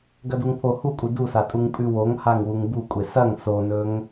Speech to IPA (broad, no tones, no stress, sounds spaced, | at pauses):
ɡ ɐ d u ŋ pʰ o h u kʷʼ ɨ d u s a tʼ u ŋ pʼ ʉ w o ŋ h a ŋ w u ŋ b u kʷʼ e s ɐ ŋ s o n ɵ ŋ